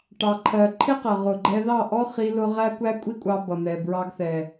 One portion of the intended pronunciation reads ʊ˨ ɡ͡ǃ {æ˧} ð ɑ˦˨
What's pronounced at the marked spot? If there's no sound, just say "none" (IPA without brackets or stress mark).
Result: ɛ˧